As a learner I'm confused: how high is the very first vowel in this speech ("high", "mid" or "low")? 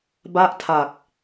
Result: low